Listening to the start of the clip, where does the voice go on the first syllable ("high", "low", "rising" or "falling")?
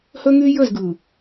high